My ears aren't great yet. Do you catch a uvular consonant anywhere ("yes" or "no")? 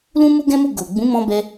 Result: no